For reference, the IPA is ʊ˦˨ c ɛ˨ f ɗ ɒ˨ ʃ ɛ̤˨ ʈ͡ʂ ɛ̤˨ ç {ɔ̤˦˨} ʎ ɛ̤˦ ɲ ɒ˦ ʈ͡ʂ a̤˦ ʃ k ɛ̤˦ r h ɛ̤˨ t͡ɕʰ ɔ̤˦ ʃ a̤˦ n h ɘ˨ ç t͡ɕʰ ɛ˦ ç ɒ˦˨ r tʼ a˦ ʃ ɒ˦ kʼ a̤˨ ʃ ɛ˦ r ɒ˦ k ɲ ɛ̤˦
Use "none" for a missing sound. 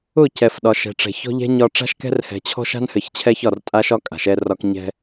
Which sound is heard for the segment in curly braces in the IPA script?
ɔ̤˦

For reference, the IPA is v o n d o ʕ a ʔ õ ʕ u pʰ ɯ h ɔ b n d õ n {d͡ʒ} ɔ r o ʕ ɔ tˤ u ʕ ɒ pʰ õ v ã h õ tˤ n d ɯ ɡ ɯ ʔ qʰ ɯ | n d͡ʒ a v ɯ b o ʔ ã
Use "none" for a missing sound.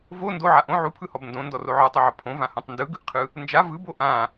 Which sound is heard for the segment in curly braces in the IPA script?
d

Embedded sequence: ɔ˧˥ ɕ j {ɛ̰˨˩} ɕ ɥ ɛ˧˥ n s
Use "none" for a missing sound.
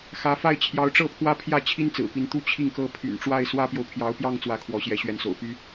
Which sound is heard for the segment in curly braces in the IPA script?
ɛ˧˥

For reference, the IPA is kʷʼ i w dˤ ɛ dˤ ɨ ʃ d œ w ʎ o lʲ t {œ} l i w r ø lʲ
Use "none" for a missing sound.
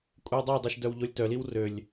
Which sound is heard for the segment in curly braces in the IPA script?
œ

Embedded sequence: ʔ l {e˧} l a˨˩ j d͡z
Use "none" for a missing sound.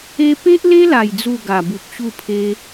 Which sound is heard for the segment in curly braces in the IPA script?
e˦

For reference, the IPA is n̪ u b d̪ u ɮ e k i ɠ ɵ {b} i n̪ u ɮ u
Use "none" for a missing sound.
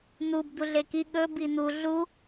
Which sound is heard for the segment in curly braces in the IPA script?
b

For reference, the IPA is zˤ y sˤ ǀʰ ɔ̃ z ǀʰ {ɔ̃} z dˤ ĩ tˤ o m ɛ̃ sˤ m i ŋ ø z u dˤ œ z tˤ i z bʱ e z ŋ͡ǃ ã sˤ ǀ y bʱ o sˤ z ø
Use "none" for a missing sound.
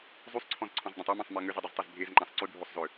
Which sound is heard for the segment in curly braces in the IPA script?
ɔ̃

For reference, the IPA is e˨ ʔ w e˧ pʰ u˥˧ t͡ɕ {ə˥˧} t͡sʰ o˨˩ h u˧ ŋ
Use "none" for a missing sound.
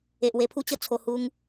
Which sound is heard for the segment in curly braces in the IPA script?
ə˥˧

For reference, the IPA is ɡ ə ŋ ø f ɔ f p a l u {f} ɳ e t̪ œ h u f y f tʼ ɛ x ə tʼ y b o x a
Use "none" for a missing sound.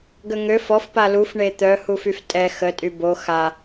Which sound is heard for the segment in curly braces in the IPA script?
f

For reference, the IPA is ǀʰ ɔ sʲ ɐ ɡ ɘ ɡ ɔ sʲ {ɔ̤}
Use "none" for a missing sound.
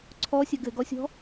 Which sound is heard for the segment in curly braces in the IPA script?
ɔ̤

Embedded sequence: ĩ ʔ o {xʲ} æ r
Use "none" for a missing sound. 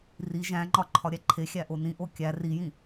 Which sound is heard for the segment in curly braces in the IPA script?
kʲ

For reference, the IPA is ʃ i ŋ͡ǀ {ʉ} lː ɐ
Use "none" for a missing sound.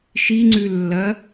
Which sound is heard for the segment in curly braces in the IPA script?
ʉ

